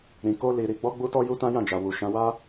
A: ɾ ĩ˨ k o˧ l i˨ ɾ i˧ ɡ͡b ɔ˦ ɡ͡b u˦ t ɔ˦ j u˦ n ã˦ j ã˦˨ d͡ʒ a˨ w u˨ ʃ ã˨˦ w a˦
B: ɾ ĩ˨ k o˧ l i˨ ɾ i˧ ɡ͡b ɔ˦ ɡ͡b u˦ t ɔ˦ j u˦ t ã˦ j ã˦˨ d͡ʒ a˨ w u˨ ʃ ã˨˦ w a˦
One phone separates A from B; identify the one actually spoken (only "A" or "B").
B